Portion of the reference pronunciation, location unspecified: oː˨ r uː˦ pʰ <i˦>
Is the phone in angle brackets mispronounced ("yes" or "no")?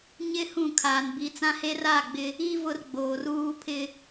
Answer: yes